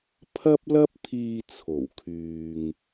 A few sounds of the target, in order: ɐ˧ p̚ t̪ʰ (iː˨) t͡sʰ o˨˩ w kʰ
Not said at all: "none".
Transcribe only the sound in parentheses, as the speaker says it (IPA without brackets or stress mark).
iː˨